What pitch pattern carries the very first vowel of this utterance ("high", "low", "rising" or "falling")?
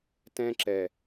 high